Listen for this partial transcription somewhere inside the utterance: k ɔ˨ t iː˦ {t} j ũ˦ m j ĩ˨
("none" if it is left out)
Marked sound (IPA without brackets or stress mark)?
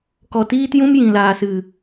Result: t